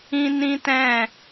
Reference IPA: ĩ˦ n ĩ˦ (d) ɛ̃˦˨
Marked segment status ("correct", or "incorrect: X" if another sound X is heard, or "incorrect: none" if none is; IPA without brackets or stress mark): incorrect: t